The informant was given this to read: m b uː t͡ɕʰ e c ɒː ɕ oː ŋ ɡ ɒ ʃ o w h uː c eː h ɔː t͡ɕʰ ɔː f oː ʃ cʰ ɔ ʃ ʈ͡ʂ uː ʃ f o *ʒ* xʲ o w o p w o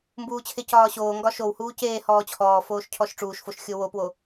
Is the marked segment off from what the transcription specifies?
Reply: yes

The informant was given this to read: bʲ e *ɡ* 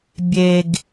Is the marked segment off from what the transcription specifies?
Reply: no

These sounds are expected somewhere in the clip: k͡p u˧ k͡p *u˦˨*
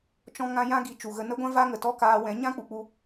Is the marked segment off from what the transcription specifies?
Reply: yes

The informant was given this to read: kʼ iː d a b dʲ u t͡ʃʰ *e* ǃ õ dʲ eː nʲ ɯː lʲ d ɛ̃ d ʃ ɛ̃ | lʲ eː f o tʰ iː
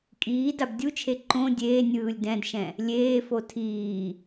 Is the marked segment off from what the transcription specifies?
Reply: no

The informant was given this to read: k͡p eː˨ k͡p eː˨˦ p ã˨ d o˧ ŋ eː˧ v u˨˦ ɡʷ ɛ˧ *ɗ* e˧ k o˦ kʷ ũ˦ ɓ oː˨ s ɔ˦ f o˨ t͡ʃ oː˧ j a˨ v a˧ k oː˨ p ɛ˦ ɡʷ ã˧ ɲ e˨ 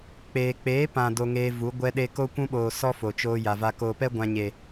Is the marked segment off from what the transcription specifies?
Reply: no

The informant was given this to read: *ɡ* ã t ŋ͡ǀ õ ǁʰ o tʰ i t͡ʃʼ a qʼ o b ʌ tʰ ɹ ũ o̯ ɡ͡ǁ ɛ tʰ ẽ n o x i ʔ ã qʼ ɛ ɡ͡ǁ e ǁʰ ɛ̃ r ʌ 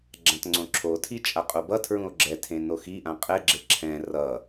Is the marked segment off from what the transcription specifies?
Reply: yes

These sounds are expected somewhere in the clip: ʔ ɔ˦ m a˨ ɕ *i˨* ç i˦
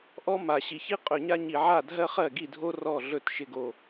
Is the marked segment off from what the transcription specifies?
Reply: no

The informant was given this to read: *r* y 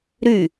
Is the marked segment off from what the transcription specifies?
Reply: yes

